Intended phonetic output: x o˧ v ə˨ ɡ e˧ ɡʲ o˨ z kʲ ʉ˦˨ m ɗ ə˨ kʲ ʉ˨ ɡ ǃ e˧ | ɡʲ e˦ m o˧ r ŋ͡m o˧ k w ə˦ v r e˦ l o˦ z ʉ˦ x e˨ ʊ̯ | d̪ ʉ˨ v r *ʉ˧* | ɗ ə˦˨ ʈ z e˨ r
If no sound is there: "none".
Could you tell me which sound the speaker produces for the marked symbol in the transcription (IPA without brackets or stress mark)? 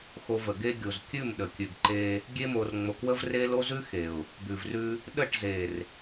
ʉ˧